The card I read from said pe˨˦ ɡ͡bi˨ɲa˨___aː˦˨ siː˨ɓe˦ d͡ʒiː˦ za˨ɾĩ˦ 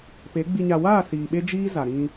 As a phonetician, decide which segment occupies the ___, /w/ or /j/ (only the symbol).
w